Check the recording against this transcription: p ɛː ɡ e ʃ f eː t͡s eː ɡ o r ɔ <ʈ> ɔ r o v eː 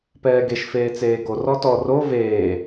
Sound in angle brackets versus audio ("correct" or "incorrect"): incorrect